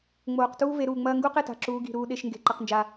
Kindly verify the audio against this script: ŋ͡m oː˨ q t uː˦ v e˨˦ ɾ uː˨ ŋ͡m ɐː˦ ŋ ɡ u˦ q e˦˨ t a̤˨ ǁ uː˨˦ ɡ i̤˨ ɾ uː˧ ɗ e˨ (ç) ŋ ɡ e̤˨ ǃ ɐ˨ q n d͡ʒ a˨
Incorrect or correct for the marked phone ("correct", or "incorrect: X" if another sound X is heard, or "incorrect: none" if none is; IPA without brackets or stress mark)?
incorrect: ʃ